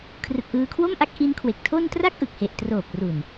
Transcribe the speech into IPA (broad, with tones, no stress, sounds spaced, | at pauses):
kʰ r ɯ˨˩ k̚ ʔ ɯː˧ kʰ w o˥˩ m ʔ a˦˥ k̚ ʔ i˦˥ n kʰ w e˨˩ k̚ tʰ o˥˩ n t r a˥˩ k̚ ʔ ɯ˨˩ k̚ h e˨˩ ʔ t r oː˨˩ p̚ r u˨˩ n